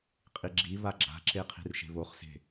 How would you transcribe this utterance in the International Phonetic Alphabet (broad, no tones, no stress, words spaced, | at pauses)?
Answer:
qʼiɡ͡ǁi βaɡ͡ǁa̤ǁeqʰi̤r ʃe̤βoχse̤